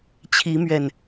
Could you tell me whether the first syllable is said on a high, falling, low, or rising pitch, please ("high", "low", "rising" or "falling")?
rising